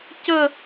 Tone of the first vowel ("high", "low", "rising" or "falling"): falling